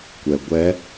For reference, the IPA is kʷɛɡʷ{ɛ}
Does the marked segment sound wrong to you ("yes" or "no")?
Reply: no